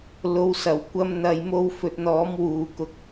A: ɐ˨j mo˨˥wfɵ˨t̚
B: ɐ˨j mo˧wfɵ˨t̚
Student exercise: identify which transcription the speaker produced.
B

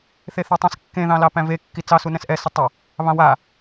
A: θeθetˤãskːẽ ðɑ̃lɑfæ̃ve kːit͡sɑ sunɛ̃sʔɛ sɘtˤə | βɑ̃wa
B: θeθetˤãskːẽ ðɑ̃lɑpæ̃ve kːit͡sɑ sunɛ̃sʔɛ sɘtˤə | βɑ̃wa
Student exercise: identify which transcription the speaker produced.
B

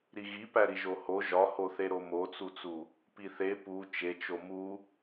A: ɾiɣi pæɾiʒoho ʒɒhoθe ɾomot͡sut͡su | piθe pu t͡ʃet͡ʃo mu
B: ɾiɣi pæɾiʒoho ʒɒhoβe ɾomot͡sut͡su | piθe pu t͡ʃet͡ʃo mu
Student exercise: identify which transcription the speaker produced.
A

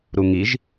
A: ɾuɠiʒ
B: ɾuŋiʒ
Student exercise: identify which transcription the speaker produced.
B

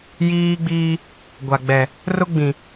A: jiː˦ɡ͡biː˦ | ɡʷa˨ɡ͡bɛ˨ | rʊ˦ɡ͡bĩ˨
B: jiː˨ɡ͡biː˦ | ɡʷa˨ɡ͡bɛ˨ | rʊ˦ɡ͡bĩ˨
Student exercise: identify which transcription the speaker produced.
A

